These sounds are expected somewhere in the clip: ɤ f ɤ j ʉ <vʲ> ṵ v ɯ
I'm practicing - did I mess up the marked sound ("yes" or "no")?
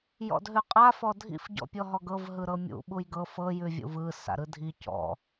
no